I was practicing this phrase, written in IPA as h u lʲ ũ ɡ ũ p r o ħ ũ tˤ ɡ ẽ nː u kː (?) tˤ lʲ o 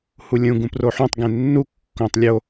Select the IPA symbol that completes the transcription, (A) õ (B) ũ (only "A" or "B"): A